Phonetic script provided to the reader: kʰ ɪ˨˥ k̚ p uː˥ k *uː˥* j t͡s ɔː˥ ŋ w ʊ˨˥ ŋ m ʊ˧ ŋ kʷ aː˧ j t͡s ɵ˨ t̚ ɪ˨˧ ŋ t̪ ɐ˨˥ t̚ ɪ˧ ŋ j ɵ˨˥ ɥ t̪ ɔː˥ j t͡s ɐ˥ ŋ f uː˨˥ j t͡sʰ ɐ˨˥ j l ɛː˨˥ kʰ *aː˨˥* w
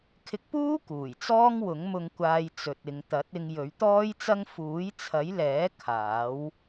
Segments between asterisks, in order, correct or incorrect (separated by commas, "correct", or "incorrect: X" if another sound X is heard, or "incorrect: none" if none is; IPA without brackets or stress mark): incorrect: uː˨˩, correct